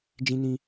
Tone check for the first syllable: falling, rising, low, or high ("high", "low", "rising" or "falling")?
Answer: high